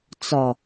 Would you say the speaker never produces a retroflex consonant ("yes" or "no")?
yes